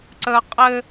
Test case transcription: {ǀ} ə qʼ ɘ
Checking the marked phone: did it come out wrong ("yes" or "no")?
no